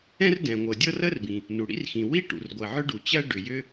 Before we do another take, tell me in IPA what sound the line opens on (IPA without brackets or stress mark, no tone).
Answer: ɛ̃